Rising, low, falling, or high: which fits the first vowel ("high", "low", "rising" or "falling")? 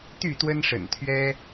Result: falling